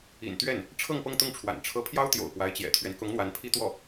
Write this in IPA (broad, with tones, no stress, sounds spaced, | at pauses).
ḭ˨˩ n t̪ ɥ ɛ˥˩ n | ʈ͡ʂʰ ɤ˥˧ ŋ p ɤ˥˧ ŋ t̪ ʊ˥˩ ŋ ʈ͡ʂʰ w a̰˨˩ n ʈ͡ʂʰ ɤ˧˥ pʰ j ɑ˥ ʊ̯ t̪ j o̰˨˩ ʊ̯ p w a˧˥ ɪ̯ t͡ɕ j ɛ̰˨˩ t̪ʰ ɥ ɛ˦ n k ʊ˧˥ ŋ n̪ w a˧˥ n pʰ i˥ t̪ w ɔ˥˩